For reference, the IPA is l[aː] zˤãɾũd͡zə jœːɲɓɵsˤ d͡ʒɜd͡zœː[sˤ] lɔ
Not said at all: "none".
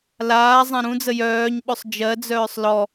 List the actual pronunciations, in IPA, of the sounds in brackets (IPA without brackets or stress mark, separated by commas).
aː, sˤ